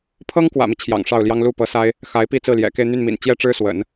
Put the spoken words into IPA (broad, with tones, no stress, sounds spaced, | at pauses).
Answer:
pʰ ɤ˥ ŋ k w ä̰˨˩ m i˦ t͡ɕʰ j ɑ̰˨˩ ŋ ʂ ɑ˥˩ ʊ̯ l j ɑ˥ ŋ l u˥˩ p ɤ˧˥ s a˥ ɪ̯ | x a˧˥ ɪ̯ p i˥˧ t͡s ɹ̩˥˩ l j ɛ̰˨˩ k e˥˧ ɪ̯ n̪ y˥˩ n m ḭ˨˩ n t͡ɕ j ɛ˥ ʈ͡ʂ ɻ̩˥ s w ə̰˨˩˦ n